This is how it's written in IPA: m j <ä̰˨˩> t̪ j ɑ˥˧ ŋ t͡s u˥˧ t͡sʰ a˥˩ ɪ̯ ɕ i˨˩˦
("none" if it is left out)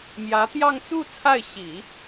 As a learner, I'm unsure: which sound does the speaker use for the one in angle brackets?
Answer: ä˧˥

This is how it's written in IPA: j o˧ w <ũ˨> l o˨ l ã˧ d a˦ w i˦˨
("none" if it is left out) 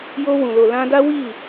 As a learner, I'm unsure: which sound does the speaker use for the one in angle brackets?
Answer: ũ˨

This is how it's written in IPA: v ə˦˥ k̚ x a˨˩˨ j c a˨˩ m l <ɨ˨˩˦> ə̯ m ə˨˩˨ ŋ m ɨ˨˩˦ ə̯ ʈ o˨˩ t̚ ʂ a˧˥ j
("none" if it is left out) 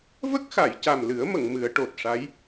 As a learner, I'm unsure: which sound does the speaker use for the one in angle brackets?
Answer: ɨ˨˩˦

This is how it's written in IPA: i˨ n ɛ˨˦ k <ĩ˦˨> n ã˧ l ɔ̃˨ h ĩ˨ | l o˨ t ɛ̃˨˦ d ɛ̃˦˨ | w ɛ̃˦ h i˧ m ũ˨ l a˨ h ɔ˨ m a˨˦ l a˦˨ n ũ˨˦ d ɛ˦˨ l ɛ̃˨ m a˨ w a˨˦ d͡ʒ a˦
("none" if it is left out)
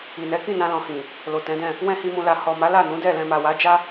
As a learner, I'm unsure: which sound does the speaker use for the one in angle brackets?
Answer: ĩ˦˨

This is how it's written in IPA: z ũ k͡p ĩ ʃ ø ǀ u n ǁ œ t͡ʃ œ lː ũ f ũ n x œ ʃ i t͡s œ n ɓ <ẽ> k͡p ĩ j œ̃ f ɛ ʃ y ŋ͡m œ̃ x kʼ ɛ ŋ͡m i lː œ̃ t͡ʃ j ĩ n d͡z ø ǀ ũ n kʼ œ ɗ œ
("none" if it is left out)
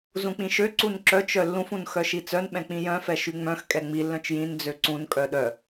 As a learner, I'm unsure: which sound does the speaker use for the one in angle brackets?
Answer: ɛ̃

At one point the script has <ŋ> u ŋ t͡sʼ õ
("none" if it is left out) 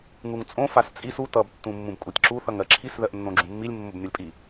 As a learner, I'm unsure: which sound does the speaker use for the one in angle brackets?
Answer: ŋ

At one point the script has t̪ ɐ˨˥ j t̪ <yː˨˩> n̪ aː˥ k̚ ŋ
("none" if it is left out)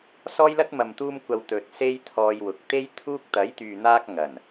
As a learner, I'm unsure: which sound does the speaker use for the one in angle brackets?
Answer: yː˨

